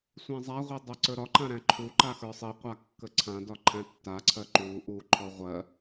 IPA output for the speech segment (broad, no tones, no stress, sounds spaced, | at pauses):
sʷ æ̃ zˤ a ʁʷ i dˤ ɜ ǀ ə˞ ɾ ɒ ǃ ã ɾ æ̃ ǃʰ u ǃ a x ə˞ sˤ i qʷ a kː ə ǀʰ ã d ɒ ǃʰ æ̃ tː a ǀʰ ɜ ǃ u ʔ u ǃʰ ɔ ʁʷ ɜ